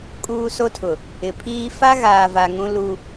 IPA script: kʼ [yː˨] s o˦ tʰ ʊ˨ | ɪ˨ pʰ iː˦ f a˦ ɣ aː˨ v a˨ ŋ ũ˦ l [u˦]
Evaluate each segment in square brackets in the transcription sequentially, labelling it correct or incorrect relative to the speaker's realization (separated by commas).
incorrect, correct